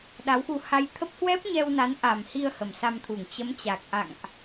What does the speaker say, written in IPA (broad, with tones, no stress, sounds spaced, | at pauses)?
ɗ a˨˦ w x u˧ h a˧ j t̪ʰ ə˦˥ p̚ h w ɛ˦˥ p̚ ɲ ɛ˧ w n a˨˦ n ʔ a˨˩ m h i˧ ə̯ h ə˨˩ m s a˧ m t̪ʰ u˧˩ ŋ t͡ɕ ə˨˦ m t͡ɕ a˨˩ k̚ ʔ a̰˧˨ ŋ ʔ